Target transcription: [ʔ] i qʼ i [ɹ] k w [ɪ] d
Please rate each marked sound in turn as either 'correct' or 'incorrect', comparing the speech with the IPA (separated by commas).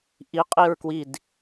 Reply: correct, correct, incorrect